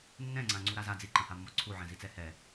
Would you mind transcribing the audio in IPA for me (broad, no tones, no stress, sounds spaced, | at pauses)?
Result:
nː ɛ̃ ŋ͡ǀ ã ŋ͡ǀ u ɾ a z a d͡z i ǃ ã h a mː ɔ ǀʰ u ʕ ɛ̃ z i t͡s ɛ h ɛ